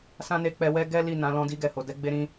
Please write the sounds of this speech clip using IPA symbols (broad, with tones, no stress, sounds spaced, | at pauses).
s ã˦ n e˧ k͡p ɛ˧ w ɛ˦ ɡ ɛ˦ l i˦˨ n ã˨˦ l ɔ̃˦ d i˧ ɡ ɛ˨ h o˨ d ɛ˧ ɡ͡b e˦ ɾ ĩ˦